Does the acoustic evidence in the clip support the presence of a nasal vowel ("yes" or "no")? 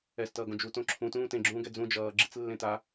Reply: yes